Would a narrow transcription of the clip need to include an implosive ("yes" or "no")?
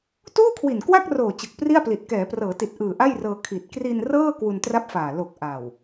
no